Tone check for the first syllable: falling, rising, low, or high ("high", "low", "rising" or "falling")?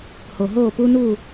low